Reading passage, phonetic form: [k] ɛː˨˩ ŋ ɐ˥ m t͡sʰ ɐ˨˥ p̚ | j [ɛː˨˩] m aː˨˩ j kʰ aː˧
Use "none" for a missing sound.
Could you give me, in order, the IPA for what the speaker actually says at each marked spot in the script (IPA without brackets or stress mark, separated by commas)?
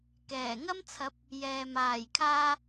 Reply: k, ɛː˨